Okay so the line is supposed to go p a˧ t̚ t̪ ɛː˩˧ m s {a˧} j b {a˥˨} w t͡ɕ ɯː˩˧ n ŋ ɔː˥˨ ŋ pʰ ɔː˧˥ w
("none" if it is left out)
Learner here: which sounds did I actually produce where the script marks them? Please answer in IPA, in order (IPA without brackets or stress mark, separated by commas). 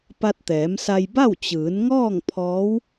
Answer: a˧, a˥˨